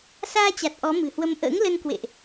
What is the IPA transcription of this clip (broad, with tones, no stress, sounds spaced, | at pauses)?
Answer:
s aː˧ t͡ɕ a˨˩ t̚ ʔ ɔ˨˦ m ɨ̤˨˩ h w ə˧ m ʔ ə̰ː˧˥ ŋ l ə˧ n k w ḛ˧˨ ʔ